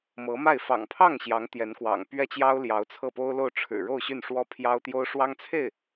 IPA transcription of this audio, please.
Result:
m ɤ˧˥ m a˥˩ ɪ̯ f ɑ̰˨˩ ŋ pʰ ɑ˥˩ ŋ ɕ j ɑ˧˥ ŋ t̪ j ɛ˧˥ n k w ɑ̰˨˩ ŋ p ɥ ɛ˥ t͡ɕ j ɑ˥ ʊ̯ l j ɑ˧˥ ʊ̯ t͡sʰ ɤ˥˩ p o˥ ʊ̯ l o˥˩ ʊ̯ ʈ͡ʂʰ ɻ̩˨˩ ɻ o˥˧ ʊ̯ ɕ y˥˩ n ʂ w ɔ˥ pʰ j ɑ˥ ʊ̯ t̪ j o˥ ʊ̯ ʂ w ɑ˥ ŋ t͡sʰ e˥˩ ɪ̯

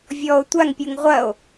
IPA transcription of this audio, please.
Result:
vʲ ɔ o̯ tʷ a ŋ pʲ u ŋ ʁʷ ɐ o̯

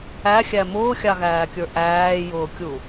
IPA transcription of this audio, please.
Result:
æ xʲ æ m ʊː xʲ ɑ ɣ æː kʲ ə˞ ʔ æː j ʊː kʲ u

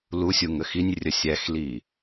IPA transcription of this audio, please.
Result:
l u sʲ u ŋ ə x i nʲ rʲ ə sʲ æ x l i

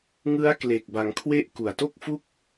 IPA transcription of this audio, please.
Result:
ŋ ɯ˦˥ a̯ k l e˨˩ k̚ b a˩˦ ŋ kʰ w e˥˩ ʔ k u˨˩ a̯ t o˥˩ k̚ f u˥˩ k̚

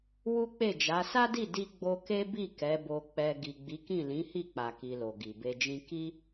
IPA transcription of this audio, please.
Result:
w u˦ k͡p e˦˨ d͡ʒ a˨˦ s a˦ d i˦˨ d i˧ ɡ͡b o˧ k e˦ b i˦˨ k ɛ˨˦ b o˧ k͡p ɛ˧ ɡ i˨ ɡ͡b i˨˦ k ĩ˦˨ l ĩ˨˦ h i˦˨ k͡p a˨ k i˧ l o˨ ɡ i˨ b e˧ d͡ʒ ĩ˦ k i˦

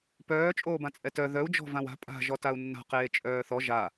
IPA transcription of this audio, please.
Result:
p œː t͡ʃʼ oː b ã t͡sʼ ɛ t œ ð œ u̯ d͡ʒ ɔ̤ v ã w a̤ pʼ a̤ ʒ ɔ t a u̯ nː a̤ q eː t͡ʃʼ œː θ ɔ ʒ a

